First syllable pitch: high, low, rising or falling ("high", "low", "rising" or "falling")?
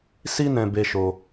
high